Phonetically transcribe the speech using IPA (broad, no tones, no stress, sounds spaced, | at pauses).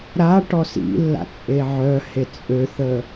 ɾ a ʈ ɔ s ḭ lː a̰ t͡sʼ e ʕ œ h e t͡sʼ ø θ ə